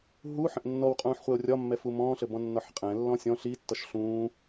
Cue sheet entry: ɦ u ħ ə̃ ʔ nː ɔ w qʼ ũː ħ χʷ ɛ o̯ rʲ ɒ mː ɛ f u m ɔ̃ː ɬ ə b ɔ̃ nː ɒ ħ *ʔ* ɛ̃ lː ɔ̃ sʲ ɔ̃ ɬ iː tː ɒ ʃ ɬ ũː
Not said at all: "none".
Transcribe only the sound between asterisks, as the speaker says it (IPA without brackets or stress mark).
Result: qʼ